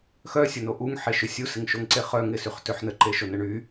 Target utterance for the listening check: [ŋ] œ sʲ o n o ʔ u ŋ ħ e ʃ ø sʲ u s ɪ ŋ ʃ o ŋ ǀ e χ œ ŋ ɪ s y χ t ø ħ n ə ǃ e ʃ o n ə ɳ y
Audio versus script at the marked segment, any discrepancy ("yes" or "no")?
yes